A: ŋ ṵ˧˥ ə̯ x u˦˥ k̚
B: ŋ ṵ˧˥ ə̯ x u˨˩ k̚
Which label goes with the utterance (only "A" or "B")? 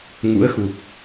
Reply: B